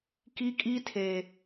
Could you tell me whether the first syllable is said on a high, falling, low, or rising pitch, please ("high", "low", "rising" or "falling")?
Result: high